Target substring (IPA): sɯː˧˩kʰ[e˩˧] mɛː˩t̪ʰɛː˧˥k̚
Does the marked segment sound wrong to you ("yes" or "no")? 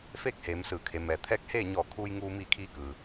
no